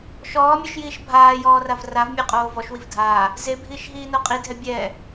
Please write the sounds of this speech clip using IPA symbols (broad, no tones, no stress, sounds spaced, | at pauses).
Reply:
ʃ ɔː mʲ ʉ ʃ j iː ʃ bʱ aː j ɔː r a v r a v mʲ ɛ qʼ oː v ɔ ʃ w i v dʱ aː | z e bʱ iː ʃ ɦ iː n o qʼ i dʱ ɛ bʲ ɛː